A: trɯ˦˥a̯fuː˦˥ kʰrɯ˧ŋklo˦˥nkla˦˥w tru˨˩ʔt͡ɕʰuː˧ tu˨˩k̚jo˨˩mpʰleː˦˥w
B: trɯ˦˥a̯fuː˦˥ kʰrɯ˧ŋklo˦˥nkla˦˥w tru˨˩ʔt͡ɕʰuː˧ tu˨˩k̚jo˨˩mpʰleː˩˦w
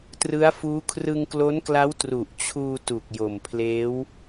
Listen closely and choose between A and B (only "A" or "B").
A